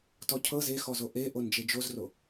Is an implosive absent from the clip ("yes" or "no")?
yes